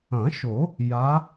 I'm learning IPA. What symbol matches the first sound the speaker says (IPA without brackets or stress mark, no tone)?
ɐ̃